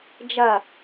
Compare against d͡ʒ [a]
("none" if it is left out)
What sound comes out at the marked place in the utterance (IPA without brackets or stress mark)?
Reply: ɐ